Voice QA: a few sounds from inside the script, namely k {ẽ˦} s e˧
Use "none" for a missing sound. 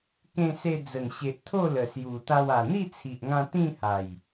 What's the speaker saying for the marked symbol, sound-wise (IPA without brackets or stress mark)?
ẽ˧